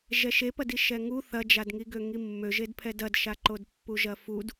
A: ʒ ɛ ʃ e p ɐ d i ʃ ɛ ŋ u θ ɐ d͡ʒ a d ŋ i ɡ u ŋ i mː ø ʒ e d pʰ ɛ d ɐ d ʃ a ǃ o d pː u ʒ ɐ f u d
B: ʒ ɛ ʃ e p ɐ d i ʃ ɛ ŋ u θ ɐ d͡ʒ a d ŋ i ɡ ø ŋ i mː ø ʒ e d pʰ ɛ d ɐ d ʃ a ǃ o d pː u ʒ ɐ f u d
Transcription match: B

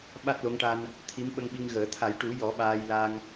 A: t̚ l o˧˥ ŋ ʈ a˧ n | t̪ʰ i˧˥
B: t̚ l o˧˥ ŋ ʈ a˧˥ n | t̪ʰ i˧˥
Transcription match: A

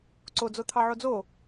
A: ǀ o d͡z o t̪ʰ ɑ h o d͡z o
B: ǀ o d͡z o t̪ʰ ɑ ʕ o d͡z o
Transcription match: B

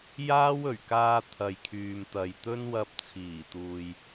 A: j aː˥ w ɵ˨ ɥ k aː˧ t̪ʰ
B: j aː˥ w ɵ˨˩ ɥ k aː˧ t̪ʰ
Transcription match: B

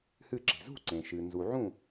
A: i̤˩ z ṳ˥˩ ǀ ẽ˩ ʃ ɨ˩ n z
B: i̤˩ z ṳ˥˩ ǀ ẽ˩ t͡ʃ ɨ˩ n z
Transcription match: A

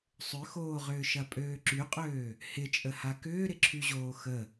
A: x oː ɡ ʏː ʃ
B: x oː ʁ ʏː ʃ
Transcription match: B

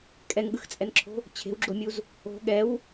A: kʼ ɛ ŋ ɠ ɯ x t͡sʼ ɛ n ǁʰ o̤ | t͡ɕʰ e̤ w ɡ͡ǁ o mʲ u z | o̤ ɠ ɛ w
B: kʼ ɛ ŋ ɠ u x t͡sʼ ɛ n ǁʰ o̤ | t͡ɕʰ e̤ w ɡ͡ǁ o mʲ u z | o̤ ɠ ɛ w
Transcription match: A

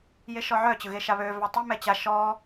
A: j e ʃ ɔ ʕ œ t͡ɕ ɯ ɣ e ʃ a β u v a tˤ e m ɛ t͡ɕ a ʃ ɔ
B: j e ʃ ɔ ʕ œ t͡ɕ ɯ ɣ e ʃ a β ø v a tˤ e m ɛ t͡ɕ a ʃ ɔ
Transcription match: B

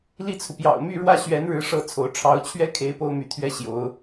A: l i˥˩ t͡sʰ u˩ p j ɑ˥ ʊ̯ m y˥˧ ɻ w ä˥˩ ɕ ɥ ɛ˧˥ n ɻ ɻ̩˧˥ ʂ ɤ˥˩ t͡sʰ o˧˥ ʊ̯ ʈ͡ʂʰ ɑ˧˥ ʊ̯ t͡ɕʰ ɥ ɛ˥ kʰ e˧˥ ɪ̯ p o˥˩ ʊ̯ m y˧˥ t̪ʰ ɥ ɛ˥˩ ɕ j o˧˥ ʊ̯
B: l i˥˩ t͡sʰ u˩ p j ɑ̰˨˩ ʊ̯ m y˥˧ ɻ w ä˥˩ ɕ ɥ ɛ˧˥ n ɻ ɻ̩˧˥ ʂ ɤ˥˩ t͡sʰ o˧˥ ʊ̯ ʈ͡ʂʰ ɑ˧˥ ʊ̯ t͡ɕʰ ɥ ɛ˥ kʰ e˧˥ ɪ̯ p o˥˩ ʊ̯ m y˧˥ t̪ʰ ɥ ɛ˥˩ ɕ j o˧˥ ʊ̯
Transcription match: B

